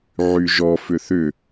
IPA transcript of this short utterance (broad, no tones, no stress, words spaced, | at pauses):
ʕyʒɔ fʏθʏ